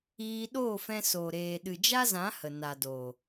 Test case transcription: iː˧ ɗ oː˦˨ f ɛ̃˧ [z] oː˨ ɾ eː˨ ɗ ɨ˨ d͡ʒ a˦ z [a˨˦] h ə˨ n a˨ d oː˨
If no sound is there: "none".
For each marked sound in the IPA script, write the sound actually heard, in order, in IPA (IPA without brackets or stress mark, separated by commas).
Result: s, ã˨˦